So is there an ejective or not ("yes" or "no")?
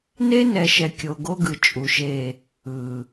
yes